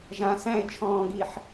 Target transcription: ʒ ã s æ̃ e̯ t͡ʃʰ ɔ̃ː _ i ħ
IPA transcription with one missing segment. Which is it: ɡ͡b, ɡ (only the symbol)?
ɡ